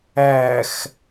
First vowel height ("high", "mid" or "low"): low